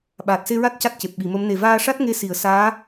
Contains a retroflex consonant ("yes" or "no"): yes